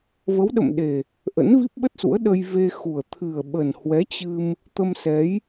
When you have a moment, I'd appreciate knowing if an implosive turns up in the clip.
yes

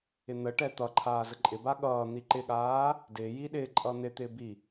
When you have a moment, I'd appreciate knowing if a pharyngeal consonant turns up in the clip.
no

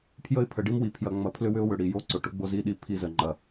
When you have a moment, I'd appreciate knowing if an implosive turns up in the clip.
yes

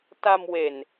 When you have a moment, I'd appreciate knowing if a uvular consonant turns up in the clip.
no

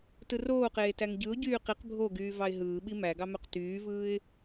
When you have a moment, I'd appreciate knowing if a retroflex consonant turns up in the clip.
no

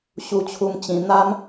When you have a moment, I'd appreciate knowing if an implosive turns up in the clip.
no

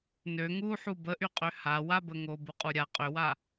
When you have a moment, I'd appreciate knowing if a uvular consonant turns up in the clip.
yes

